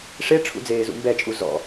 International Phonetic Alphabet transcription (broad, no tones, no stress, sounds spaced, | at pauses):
ʂ e ʈ͡ʂʰ ṵ d͡z eː z ṵ m b ɛ t͡ʃʼ u z ɔ̰